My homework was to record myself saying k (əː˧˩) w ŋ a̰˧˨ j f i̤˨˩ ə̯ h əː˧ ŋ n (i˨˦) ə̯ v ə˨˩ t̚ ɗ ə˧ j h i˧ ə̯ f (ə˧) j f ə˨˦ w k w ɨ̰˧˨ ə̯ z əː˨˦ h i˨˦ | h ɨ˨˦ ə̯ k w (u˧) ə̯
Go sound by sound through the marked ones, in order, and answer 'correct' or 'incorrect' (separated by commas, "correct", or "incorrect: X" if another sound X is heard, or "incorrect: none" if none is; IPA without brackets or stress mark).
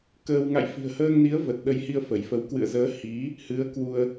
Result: incorrect: əː˧, correct, incorrect: ə˧˩, correct